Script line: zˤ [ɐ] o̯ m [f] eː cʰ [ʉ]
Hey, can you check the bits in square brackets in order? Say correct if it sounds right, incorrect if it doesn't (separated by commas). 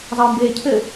correct, incorrect, incorrect